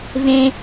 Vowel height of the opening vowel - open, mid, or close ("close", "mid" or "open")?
mid